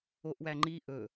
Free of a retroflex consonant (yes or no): yes